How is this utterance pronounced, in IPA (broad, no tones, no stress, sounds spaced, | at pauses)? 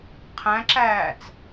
qʰ æ̃ ǁ æː t͡s